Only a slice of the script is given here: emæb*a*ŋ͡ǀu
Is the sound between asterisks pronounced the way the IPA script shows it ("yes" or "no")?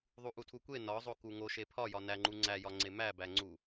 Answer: no